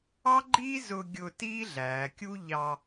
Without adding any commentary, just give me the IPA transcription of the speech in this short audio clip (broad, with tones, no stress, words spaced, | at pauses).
ɑ˥ɡ͡ǃi˥zʊ˧ ɡʲʊ˧ ti˥ɮæː˩˧kʲu˥ ʎɑ˧